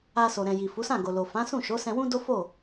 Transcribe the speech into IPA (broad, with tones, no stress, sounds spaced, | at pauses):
a˧ s o˨ ɾ ɛ̃˨ j i˨ f u˨˦ s ã˦˨ ɡ o˨ l o˨ f ã˨˦ s ũ˦˨ ʃ o˨˦ s ɛ̃˧ w ũ˦ d o˦ f o˦˨